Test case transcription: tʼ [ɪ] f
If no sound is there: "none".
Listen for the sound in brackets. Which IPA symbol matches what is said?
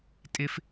ɪ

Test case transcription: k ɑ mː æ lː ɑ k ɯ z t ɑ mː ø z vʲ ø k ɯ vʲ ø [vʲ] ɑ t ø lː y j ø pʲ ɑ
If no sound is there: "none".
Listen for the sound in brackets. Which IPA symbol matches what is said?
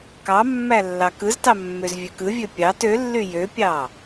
pʲ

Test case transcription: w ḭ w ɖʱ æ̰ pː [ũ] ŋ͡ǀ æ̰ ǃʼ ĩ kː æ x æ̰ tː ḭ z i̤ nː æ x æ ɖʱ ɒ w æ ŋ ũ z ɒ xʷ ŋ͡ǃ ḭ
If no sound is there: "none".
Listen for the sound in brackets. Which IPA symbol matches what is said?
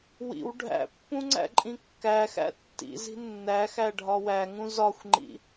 ũ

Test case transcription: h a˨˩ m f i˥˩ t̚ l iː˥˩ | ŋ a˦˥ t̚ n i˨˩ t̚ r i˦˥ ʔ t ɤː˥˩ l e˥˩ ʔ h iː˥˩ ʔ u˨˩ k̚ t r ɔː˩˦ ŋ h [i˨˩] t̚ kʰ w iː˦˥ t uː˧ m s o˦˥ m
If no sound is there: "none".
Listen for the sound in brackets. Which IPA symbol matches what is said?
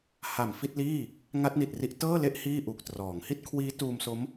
i˥˩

